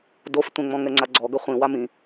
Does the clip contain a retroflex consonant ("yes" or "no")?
no